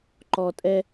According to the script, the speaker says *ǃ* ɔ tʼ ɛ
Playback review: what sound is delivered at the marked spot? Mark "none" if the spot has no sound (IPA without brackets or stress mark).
ǃ